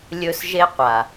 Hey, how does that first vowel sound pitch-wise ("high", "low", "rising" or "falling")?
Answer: high